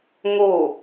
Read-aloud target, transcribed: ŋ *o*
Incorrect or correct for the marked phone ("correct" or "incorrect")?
correct